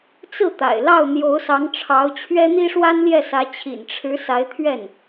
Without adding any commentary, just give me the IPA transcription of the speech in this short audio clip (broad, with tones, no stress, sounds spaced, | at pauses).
t͡s ɹ̩˥˩ t̪ a̰˨˩ ɪ̯ l ɑ˥˩ ʊ̯ n̪ j o˧˥ ʊ̯ s ɑ˧˥ ŋ ʈ͡ʂʰ ɑ˧˥ ʊ̯ t͡ɕʰ ɥ ɛ˥ n̪ i˥ ʂ w a˥ n l j ɛ˥˩ s ä˧˥ t͡ɕʰ ḭ˨˩ n ʈ͡ʂʰ ɻ̩˧˥ s a˧˥ ɪ̯ t̪ʰ ɥ ɛ˥˩ n